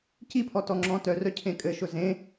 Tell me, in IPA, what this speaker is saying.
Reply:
c i pʰ ɔ t ɔ ŋ͡ǁ ɔ̃ t œ r œ cʰ ẽ kʼ ɘ ʃ ʊ z ẽ

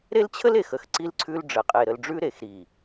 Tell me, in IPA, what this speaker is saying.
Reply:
ɾ e˦ l t͡ɕʰ ə˦ l e˨ x ə˨ x ǀ i˦ l ǀʰ ʉ˦ l ɖ͡ʐ ə˨ qʼ e˨ ɾ ə˨ l ɖ͡ʐ ʉ˦ ɾ e˨ x ɾ i˨

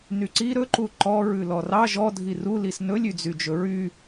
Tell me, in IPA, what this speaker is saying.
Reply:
n y ǀ i ɾ ɵ ǃ u ǃ ɔ ɹ ʉ l ɔ r ɑ ʒ ɔ dʱ i r u l i s n ɵ lʲ y d͡z y d͡ʒ ɵ ɹ y

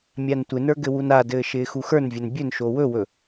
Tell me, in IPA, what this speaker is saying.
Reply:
mʲ a n tʷ ɪ n ə˞ ɡ ɘ w u n a d ɘː ʃ ɪː x u x ə˞ n vʲ ɘ n bʲ ɵ n ʃ o w ɵ w ɵ

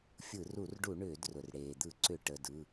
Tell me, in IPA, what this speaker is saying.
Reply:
fʲ ɯ˧˩˧ r u˧˩˧ r ɖ u˧˩˧ ɳ ʏː˧˩˧ d r ʊ˩ r ɽ eː˩ d̪ ɯ˧˩˧ ǀ ʏ˧˩˧ ʈ ə˩˧˩ d ɯ˩˧˩

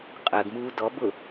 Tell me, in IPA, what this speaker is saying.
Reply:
qʼ əː ɡ m uː d ɔ b ʊ

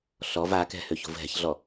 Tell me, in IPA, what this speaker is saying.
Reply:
ɬ ɔ v a k ɛ̤ h ø ç o̤ v ɦ ɛ̤ ç ɮ ɔ

